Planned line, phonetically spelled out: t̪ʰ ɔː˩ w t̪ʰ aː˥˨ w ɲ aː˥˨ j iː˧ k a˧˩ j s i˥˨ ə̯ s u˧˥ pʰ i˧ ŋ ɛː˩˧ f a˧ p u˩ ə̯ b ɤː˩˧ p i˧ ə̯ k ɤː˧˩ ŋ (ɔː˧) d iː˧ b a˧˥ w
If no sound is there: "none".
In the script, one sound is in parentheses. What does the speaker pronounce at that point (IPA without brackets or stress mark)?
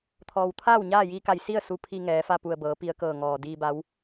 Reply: ɔː˩